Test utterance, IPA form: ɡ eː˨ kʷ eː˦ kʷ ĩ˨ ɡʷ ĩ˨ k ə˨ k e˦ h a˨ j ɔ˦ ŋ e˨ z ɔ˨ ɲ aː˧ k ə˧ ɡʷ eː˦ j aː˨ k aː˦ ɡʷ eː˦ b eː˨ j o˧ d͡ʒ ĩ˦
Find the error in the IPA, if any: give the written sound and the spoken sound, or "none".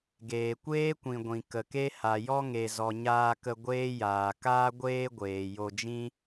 b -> ɡʷ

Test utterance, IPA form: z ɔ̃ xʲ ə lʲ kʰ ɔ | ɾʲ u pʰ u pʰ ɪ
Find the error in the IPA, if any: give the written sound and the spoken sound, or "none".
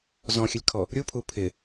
none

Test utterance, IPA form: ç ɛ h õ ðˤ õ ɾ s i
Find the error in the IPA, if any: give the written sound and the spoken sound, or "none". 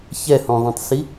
ɾ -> tˤ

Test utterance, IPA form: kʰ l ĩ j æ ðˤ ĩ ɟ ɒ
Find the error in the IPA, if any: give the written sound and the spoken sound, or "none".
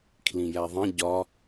none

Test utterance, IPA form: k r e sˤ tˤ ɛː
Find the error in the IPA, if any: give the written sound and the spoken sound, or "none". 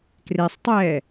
none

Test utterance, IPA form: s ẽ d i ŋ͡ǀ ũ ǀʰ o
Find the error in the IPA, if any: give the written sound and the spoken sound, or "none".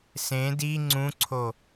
none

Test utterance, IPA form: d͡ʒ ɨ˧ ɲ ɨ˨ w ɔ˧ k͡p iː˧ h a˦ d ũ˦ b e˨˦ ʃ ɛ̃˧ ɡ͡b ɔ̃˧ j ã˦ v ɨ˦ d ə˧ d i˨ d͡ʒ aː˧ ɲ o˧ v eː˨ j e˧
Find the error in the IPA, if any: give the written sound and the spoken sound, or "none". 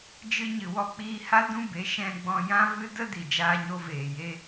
none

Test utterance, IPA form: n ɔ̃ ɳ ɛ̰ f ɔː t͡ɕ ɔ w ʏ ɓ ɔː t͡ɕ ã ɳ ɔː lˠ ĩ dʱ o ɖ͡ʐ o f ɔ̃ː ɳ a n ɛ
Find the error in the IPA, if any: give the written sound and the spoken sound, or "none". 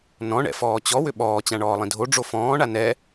none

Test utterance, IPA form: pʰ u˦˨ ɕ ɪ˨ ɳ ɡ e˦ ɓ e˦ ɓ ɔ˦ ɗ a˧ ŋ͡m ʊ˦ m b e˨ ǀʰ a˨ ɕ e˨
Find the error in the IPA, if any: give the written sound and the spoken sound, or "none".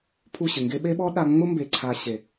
ɳ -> ŋ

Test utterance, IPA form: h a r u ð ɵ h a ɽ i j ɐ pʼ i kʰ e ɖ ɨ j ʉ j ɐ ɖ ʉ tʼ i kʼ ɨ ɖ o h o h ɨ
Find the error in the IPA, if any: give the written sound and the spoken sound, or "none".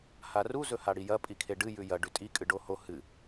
ð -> z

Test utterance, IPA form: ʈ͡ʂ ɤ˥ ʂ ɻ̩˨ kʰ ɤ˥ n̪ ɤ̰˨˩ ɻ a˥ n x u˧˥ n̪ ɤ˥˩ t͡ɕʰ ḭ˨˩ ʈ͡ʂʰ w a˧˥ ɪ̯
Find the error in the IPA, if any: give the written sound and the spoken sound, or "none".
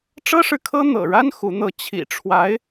none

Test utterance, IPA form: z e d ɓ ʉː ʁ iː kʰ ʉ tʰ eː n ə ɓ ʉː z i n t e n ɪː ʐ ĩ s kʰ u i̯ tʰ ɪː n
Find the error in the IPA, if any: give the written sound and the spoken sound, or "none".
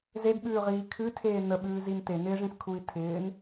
none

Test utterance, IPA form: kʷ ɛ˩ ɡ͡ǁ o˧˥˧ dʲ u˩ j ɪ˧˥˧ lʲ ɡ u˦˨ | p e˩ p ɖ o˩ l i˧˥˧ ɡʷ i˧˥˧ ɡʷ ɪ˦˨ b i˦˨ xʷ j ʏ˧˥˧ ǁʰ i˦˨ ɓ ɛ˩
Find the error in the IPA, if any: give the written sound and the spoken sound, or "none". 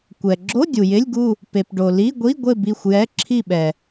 ʏ˧˥˧ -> ɛ˧˥˧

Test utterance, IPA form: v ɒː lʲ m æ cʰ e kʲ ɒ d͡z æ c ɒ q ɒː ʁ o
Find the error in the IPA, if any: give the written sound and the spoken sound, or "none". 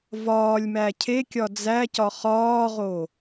q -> χ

